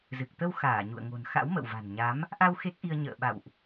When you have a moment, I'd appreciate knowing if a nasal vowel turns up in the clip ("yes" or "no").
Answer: no